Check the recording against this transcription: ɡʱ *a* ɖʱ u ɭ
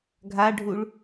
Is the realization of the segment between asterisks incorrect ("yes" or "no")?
no